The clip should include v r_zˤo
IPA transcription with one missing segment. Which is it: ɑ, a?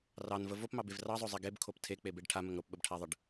ɑ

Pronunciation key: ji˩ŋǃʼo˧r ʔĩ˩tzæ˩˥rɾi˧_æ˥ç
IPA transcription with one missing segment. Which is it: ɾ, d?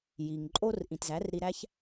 ɾ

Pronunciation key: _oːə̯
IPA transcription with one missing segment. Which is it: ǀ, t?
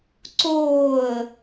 ǀ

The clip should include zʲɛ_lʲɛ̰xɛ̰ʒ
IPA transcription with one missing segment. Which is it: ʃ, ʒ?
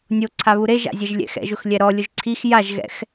ʒ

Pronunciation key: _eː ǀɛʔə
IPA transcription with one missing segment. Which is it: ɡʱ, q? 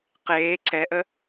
q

